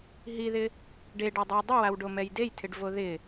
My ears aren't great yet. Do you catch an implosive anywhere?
no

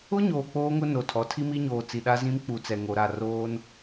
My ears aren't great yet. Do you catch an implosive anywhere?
yes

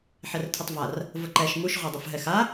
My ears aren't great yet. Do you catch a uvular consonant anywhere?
yes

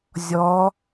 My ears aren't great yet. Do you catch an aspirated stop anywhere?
no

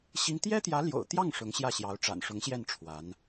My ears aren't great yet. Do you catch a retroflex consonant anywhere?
yes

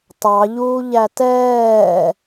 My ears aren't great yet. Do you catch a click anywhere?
no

